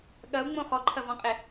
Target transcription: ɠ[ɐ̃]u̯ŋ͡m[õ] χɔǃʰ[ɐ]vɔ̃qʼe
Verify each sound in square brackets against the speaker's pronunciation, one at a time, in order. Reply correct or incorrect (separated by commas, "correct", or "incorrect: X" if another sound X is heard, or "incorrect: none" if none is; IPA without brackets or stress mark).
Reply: incorrect: ɐ, correct, correct